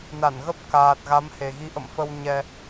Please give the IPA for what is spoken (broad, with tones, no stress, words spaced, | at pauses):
na˧˩nɣə˦˥p̚ kaː˨˩t̚ɣa˨˦mhe˨˩ɣi˨˦ ʔə̰˧˨mfə˧w ɲɛ˧